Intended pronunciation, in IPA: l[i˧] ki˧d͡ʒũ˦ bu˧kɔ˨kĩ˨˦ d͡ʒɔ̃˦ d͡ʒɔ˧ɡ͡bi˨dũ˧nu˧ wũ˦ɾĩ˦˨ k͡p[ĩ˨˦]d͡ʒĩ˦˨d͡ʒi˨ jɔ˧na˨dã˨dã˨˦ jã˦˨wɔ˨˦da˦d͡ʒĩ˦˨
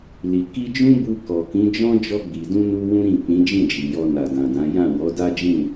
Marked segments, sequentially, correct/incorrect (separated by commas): incorrect, correct